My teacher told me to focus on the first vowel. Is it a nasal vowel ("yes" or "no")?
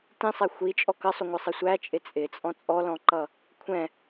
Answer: yes